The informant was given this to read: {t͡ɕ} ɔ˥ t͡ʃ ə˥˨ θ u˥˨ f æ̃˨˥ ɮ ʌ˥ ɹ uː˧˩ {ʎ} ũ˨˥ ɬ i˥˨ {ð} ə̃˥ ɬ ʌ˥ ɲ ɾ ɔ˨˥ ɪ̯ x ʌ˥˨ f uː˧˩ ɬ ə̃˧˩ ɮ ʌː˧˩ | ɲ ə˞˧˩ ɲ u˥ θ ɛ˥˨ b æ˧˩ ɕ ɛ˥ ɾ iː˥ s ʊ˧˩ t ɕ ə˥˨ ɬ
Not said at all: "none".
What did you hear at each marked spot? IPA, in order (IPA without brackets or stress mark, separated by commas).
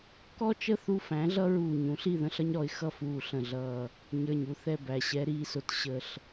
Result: k, ɲ, ð